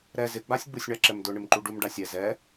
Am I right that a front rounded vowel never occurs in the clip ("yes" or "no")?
yes